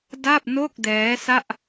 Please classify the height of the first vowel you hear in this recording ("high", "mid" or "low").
low